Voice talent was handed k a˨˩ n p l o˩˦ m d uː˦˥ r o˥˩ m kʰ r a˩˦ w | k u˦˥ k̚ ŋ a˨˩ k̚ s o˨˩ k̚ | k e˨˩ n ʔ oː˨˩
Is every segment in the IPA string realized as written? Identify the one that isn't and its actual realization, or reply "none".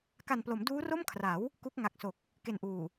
oː˨˩ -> uː˨˩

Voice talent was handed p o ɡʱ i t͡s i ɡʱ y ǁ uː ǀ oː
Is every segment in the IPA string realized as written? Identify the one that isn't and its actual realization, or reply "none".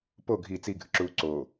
y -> ɨ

